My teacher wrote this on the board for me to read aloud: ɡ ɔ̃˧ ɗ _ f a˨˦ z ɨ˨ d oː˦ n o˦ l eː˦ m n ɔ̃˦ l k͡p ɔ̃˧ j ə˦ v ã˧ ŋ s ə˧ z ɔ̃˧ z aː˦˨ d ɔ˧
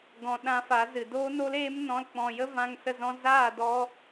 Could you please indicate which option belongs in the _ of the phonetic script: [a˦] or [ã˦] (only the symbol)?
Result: ã˦